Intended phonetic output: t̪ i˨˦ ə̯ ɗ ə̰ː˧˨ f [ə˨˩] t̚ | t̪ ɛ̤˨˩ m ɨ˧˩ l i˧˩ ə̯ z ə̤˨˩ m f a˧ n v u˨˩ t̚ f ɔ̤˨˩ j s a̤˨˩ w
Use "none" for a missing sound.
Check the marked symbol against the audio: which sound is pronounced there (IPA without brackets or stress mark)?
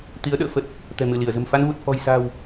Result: ə˨˩